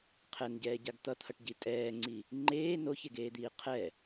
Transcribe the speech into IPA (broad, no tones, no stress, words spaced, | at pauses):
qʰɛnɟɛːɟaɡ t̪ʌt̪ʰʌʈɟi tʼɛːŋ͡ǀi | ŋ͡ǃeː noçeɡeːd̪iː qʰɛ